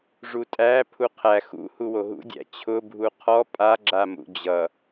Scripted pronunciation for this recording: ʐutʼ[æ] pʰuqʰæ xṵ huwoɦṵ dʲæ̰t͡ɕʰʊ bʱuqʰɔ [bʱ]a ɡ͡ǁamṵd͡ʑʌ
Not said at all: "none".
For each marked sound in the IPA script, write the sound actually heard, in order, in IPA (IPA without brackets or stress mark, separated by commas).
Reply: æ, pʼ